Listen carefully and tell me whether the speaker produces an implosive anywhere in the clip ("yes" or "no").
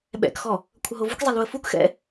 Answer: yes